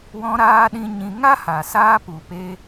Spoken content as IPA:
w ɔ̃˧ ɾ aː˧ ɗ ĩ˧ ɲ ĩ˧ ŋ a˦ h a˨ s aː˧ p u˨ p e˧

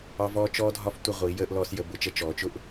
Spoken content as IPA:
ɑ˧ v ɔː˧ t͡ʃ ɔː˧ dʱ ɒ˧ f tʷ ə˧ ʁʷ i˩˧ j əː˧ ʔ l ɔː˧ s j ə˩˧ b ʊ˩˧ t͡ʃ ə˧ t͡ʃ ɔː˩˧ t͡ʃ ʊ˧ ʔ

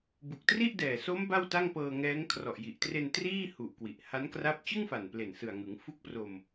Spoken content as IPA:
b u˨˩ k̚ t r i˥˩ ʔ d ɛː˨˩ s o˦˥ m b a˥˩ w t a˥˩ ŋ p ɤː˧ ŋ ɛː˦˥ ŋ kʰ r ɔ˨˩ ʔ j i˨˩ ʔ t r e˧ n t r iː˥˩ h u˨˩ ʔ k w i˨˩ ʔ h a˦˥ n k r a˦˥ p̚ t͡ɕ ɯ˥˩ ŋ f a˨˩ n p l e˨˩ n s ɯ˨˩ a̯ ŋ ɯ˩˦ ŋ f u˦˥ k̚ p r o˧ m

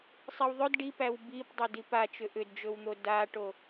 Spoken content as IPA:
sˤ i w ðˤ ɵ d ɖ i p æ w b i p dˤ ʏ d i p a t͡ʃ ʏ ʔ ʏ d d͡ʒ ɵ w n̪ o d a ʈ o

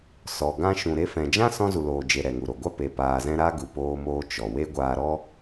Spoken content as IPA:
s ɔ˨ ɡ ã˧ ʃ ũ˨ ɾ e˧ f ɛ̃˨ d͡ʒ ã˦ s ɔ̃˧ z u˨ l oː˨ d͡ʒ e˨ ɾ ɛ˨ ŋ u˨ ɾ o˨ ɡʷ a˦ p e˨ p aː˨ z ɛ̃˧ ɾ a˦ ɡ u˨ p oː˧ m oː˧ t͡ʃ ɔ˨ w e˦ ɡʷ aː˧ ɾ ɔ˦

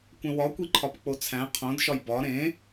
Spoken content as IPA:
kʷ ẽ w ɒ kʷ i ǃʰ ɒ p k͡p o t͡sʰ æ̃ qʰ õ d ʃ ɒ j b ɒ ɾ ẽ

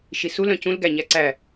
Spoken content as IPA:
ʃ i s u l œ̃ c ũ l ɡ æ ɲ æ ǀ æ

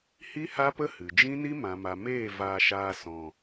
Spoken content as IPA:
h i˦ h a˦ p ə˦ h ɨ˨ d͡ʒ ĩ˦ n i˦ m ã˨ m a˨ m eː˦˨ v aː˧ ʃ aː˧ s ɔ̃˨

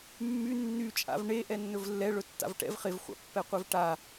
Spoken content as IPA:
mː y nː y t͡ʃʼ a̰ v ɳ e ʔ ɛ nː ɵ v lː ɛ ɭ ɵ tː a̰ v ʈ ɛ̰ v χ ɪ v χʷ a̰ pː ɛ qʷ e v ʈ a

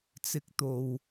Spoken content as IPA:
t͡s ɪ˧ k̚ t̪ o˨ w

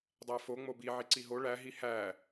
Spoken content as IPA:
dˤ æ f o ŋ͡m o b i ʕ i ǀ i ɦ o ɭ æ ɦ i h æ

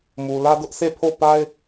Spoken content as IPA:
m u˨ l ä˦ d ʊ˦ ʔ sʰ e˦˨ pʰ o˦˨ p a˦ ɪ̯

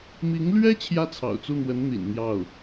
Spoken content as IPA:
m i˧˥ ŋ l ɥ ɛ˥ t͡ɕʰ j ä˥ t͡sʰ ɑ̰˨˩ ʊ̯ t͡s u˥˩ n̪ w ə˧˥ n n̪ ḭ˨˩ n n̪ j ɑ˥˩ ʊ̯

